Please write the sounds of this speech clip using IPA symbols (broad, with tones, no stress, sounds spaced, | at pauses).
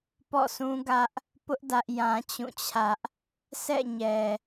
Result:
p ɔ̰˦˨ s ũ˦ ɡ ä˦ ʔ | p ʊ˦ ʔ d ä˦ ʔ j ã˦ t͡ɕ ũ˦˨ t͡ɕʰ ä˦ ʔ | sʰ ɛ̰˦˨ ɲ ɛ˨